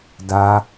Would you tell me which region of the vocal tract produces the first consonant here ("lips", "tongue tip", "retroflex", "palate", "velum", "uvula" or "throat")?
tongue tip